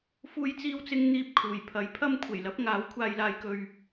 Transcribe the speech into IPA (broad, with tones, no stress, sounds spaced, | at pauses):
f uː˥ j t͡s iː˥ w t͡s ɪ˥ ŋ n̪ iː˥ p̚ kʰ uː˨˩ j pʰ ɐ˨˥ j pʰ ɐ˥ m kʷʰ e˨˩ j l ɐ˨˥ p̚ ŋ aː˨˥ w kʷʰ aː˨ j l aː˨ j k ɵ˨ ɥ